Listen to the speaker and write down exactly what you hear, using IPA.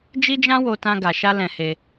d͡ʒi˦d͡ʒã˦wo˧tã˧ ɡa˨ʃa˧ lɛ̃˧he˧

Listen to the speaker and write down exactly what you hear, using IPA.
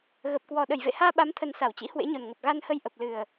ɣə˨˩p̚kwɔ˨˩ ɗə˧˩jvḛ˧˨haː˧ ɓa˨˦mt̪ʰə˨˩n sa˧˩wt͡ɕḭ˧˥hwḛ˧˥ɲo˨˩n ŋə˨˩p̚ɣa˧nhə˧j ʔə˨˩p̚lɨ˨˩ə̯

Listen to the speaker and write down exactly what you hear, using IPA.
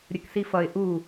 ɾʲəksifʌɪ̯ ʔu

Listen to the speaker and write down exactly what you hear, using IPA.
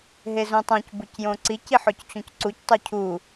ɦezũtˤõc bucjõǀici ħoct͡ɕũcǀuc tˤucʰu

